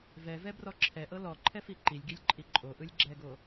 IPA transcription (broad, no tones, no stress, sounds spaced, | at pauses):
v ɛ v ɛ b r ɔ ǁʰ ɛ ʔ ɤ l ɔ ǃʰ ɛ f i ǃ i lʲ ɡ i lʲ ǃʼ i ǃʼ o ʔ ɯ lʲ ɡ͡ǁ ɛ ɡ o